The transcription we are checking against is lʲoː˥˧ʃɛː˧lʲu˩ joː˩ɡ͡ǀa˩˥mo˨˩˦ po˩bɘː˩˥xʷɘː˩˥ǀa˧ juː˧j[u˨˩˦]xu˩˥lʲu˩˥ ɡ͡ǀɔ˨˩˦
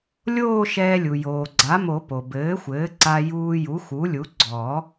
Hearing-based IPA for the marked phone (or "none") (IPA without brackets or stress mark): u˩˥